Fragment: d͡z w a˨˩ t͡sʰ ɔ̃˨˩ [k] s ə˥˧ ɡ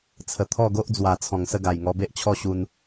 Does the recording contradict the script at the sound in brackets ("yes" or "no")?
yes